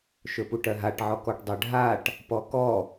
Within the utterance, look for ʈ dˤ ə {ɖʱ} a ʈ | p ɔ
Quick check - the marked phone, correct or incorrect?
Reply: correct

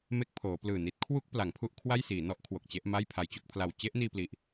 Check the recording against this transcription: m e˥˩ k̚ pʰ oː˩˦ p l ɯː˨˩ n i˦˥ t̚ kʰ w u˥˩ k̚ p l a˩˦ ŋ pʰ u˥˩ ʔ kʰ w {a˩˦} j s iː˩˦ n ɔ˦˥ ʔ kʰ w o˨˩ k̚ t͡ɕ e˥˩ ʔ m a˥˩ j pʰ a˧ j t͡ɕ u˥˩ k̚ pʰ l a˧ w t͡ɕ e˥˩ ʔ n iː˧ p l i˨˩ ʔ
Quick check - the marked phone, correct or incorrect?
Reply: incorrect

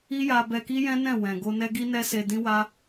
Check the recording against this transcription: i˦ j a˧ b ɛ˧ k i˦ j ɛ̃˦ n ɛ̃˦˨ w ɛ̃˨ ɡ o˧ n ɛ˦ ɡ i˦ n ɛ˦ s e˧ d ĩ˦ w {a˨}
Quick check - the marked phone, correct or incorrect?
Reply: incorrect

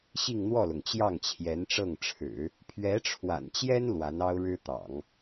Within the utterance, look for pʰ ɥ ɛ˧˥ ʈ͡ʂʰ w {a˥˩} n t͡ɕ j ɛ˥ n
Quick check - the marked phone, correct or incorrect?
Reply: incorrect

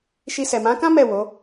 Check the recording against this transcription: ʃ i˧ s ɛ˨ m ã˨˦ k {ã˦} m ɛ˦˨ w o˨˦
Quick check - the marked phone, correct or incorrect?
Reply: correct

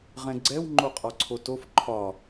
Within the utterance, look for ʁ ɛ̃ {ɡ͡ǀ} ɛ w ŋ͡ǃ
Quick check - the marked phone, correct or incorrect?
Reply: correct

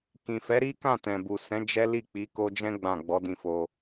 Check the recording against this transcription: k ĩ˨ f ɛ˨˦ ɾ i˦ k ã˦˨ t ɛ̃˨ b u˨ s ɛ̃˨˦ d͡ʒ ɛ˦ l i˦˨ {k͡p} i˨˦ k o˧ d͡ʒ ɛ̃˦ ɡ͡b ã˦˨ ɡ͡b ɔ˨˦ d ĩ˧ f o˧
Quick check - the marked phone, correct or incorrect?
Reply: correct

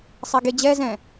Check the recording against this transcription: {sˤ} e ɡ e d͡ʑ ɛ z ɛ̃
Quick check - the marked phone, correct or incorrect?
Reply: correct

